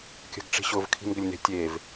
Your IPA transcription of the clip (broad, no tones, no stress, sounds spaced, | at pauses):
kʲ ə̤ ɡ ʈ͡ʂ i̤ ɕ ʊ v kʰ i̤ n ɡ ʏ lʲ n e̤ tʲ e v